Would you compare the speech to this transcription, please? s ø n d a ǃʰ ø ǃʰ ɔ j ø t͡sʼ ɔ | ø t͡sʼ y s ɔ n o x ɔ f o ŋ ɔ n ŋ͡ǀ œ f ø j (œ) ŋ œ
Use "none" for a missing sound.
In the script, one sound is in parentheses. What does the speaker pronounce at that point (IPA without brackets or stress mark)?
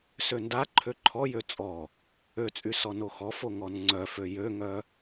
ø